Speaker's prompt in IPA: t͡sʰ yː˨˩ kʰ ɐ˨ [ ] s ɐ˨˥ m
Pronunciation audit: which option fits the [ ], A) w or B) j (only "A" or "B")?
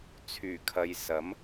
B